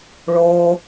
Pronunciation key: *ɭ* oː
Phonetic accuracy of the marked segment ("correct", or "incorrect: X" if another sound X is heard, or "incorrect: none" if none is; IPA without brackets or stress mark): correct